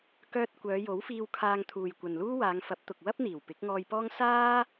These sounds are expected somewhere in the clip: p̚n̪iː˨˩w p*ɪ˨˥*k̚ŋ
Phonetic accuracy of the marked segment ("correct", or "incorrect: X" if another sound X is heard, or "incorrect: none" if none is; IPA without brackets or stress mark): correct